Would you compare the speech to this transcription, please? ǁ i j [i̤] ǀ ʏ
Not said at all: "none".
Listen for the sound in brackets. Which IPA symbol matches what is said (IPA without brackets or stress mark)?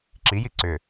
i